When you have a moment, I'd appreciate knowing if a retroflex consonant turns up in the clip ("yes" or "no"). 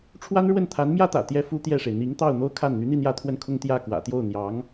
yes